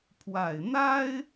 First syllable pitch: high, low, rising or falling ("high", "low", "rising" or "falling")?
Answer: low